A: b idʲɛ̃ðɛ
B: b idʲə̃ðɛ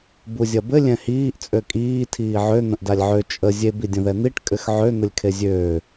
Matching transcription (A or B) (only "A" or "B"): B